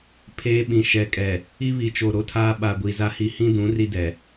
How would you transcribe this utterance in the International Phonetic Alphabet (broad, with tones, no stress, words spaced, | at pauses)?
pʰeː˦ ɓĩ˨ ʃɛ˨kʼɛ˨ | i˦βi˨t͡ʃo˨ ɾo˦tʰaː˦ ɓa˨ ɡʷi˨za˦hi˦ hĩ˦dũ˨˦ ri˦dɛ˨